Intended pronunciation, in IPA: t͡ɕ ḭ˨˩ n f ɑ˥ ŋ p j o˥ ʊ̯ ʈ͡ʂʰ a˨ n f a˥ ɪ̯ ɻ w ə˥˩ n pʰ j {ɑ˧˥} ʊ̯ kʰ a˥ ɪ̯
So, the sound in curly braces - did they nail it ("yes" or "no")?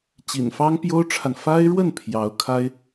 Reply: yes